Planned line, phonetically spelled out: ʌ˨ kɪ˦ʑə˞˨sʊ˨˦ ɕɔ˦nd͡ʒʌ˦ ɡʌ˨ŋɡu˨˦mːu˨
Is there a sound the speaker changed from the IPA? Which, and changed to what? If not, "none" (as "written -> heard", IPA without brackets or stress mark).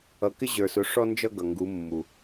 ɕ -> ʂ